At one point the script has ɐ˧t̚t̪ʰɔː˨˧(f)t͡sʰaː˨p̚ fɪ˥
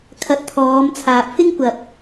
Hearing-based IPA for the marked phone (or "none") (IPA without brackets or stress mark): m